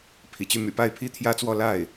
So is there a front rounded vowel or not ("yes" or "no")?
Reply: yes